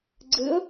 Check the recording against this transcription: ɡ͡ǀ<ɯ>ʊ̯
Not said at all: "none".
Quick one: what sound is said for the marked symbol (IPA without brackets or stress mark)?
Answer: ɯ